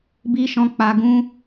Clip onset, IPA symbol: b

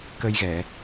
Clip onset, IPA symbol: k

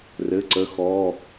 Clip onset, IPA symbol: r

